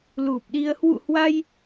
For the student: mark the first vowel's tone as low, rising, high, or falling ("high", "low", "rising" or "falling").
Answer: low